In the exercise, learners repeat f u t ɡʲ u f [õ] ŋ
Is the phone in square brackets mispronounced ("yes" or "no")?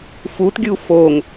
yes